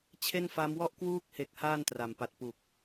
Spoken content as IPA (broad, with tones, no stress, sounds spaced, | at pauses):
t͡ɕʰ e˥˩ n f a˦˥ m w ɔ˥˩ ʔ k w uː˦˥ k̚ h e˨˩ k̚ h aː˥˩ n t r a˨˩ m p a˨˩ t̚ p u˨˩ k̚